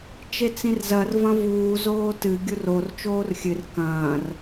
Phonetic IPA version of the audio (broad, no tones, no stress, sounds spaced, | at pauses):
t͡ʃ e t͡s ĩ r z ɐ r v ɐ̃ v uː z oː t ɨ ɡʲ u r o r t͡ʃ oː r xʲ ɨ r k ɐ̃ː r